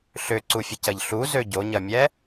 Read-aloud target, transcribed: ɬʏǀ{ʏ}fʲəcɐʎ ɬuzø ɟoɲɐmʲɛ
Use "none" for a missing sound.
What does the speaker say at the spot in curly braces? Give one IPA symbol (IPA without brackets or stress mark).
u